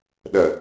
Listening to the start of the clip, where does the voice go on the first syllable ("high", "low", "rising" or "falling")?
low